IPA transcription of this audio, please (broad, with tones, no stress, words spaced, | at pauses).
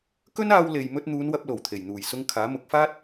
kɵ˥naː˧wle˨j mɵ˧t̚n̪uː˨˧nwɐ˧p̚lo˨˩w t̪ʰe˨˩jn̪uː˨˩jsʊ˧ŋkʰaː˨˥ mʊ˨˥k̚faː˥t̚